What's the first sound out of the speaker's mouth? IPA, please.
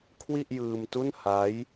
kʰ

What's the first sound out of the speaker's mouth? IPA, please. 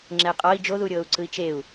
ŋ͡ǁ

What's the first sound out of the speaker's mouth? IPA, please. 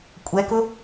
kʷʼ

